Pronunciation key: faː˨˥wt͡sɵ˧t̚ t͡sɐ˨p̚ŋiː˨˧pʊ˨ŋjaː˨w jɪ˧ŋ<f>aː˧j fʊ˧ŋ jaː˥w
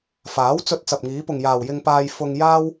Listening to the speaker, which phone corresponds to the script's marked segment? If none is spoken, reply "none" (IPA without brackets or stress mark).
p